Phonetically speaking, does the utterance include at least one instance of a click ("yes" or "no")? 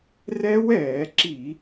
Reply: yes